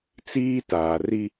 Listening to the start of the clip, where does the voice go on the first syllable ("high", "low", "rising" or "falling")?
high